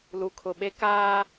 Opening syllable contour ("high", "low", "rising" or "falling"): low